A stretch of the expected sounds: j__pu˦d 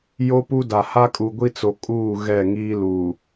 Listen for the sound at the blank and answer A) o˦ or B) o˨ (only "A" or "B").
A